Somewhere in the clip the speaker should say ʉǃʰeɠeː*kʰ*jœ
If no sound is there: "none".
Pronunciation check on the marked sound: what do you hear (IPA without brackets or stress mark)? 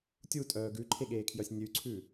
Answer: kʰ